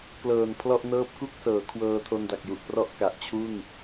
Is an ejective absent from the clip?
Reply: yes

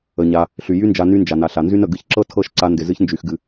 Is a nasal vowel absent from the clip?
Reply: yes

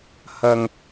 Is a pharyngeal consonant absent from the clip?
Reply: yes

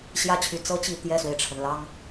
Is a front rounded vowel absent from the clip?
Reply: no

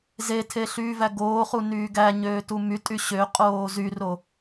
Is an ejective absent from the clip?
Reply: no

